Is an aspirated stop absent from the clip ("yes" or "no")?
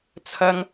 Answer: no